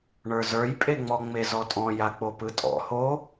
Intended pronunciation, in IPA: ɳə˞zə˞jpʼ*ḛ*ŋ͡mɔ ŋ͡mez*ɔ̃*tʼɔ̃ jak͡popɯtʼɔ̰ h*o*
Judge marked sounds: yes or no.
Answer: no, no, yes

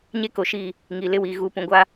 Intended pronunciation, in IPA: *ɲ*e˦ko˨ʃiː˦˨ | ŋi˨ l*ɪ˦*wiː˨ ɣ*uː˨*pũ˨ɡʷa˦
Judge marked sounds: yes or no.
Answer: yes, yes, yes

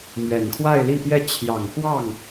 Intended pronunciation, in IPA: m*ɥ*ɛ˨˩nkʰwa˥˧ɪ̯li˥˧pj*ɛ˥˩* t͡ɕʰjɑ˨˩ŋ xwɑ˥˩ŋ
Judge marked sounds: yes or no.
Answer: yes, yes

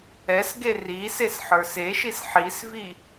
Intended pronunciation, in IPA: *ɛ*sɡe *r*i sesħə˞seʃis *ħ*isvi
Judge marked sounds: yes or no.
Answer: yes, yes, yes

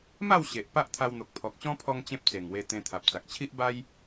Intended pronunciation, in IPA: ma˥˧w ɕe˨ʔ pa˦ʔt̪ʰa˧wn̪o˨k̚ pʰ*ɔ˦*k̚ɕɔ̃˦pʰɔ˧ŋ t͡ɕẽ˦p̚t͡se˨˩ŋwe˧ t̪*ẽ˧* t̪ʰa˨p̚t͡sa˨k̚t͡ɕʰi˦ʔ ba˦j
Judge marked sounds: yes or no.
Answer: no, yes

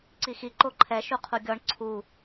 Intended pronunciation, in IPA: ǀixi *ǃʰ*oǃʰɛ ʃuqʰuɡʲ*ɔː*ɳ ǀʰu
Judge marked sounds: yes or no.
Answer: no, no

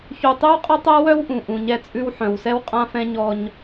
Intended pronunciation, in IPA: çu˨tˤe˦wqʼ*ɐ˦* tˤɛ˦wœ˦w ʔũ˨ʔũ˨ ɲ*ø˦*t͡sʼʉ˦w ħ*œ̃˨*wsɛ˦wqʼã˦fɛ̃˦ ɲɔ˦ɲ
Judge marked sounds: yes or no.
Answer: yes, no, yes

